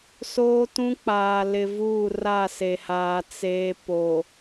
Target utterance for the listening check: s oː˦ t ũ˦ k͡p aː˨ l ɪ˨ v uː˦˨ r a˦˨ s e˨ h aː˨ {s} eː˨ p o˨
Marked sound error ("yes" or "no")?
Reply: yes